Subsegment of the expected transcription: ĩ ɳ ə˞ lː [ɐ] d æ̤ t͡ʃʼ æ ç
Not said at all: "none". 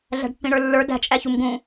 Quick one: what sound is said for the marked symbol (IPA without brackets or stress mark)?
ə˞